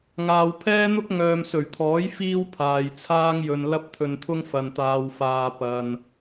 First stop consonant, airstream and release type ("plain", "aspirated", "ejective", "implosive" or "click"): aspirated